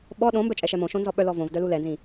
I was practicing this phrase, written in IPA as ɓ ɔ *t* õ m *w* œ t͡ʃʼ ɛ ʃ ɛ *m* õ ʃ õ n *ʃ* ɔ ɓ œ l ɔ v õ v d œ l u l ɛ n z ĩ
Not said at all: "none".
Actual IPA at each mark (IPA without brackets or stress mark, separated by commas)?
ɗ, b, m, z